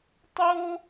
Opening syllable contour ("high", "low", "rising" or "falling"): high